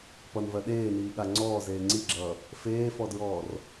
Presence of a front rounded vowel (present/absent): absent